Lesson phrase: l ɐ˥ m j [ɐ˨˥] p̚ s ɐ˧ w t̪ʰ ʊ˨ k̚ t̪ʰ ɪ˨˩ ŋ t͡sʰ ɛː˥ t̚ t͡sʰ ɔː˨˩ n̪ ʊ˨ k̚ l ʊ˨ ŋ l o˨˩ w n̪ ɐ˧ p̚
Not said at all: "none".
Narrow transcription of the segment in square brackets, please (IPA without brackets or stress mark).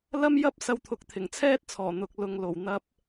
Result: ɐ˥